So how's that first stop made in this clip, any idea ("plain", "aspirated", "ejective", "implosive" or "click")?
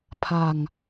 aspirated